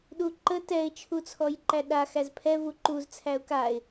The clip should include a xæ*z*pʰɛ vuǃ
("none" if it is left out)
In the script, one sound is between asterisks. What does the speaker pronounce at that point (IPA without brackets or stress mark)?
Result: z